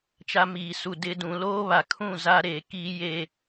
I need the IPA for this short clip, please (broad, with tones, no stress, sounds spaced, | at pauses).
t͡ʃ a˦ m iː˨ s u˨ d ɪ˨ d ũ˨ l oː˦ β a˨ kʰ ũ˦˨ z a˦ ɾ eː˨ k iː˦ j e˦